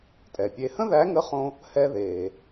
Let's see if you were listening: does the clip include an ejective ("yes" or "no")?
yes